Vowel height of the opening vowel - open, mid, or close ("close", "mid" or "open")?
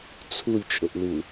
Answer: close